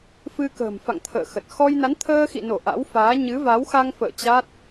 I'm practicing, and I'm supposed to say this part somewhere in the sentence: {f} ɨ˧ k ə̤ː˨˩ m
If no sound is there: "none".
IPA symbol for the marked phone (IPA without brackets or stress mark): f